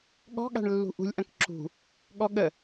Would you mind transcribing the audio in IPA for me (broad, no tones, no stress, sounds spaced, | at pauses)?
ɠ ɔ̤ ɠ a̤ ɳ lː ṳ ʔ ṳ lʲ ʔ ɐ̃ k ǁ ṳ | ɠ ɔ ɠ ə